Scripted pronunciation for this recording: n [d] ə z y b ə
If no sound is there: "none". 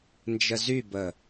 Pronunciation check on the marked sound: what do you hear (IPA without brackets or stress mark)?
d͡ʒ